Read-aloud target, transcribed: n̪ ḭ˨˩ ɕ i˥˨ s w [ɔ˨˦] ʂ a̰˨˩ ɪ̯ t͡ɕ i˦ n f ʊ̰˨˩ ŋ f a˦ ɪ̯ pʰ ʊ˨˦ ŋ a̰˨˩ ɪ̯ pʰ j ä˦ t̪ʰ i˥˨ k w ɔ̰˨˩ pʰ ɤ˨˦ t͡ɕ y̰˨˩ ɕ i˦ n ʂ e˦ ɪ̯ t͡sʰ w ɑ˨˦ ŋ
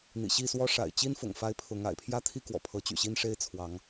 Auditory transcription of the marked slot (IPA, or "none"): ɔ˦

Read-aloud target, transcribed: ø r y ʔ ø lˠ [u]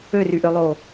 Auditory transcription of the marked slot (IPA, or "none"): o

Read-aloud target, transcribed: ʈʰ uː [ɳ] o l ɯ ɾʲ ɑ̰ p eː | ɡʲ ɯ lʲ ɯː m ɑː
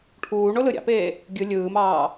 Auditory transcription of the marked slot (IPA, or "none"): ɳ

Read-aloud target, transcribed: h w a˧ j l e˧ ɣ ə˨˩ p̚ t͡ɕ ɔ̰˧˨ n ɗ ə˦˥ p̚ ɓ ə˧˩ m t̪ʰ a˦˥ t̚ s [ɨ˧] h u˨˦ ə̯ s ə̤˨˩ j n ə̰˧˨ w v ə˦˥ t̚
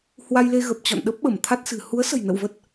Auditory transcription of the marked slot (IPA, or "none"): ɨ̤˨˩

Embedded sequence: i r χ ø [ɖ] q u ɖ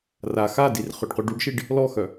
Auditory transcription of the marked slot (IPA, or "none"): ɖ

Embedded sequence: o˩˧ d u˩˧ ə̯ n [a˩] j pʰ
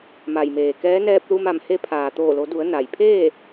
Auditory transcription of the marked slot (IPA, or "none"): a˩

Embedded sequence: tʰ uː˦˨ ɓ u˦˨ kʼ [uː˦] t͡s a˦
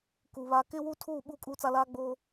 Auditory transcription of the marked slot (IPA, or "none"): uː˦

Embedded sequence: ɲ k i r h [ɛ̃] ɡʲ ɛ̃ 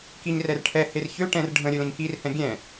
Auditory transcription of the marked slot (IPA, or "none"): ɛ̃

